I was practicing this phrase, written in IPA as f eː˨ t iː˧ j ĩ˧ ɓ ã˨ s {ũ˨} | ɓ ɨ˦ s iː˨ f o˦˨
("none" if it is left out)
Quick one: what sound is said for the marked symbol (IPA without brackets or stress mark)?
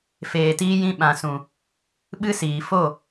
ũ˨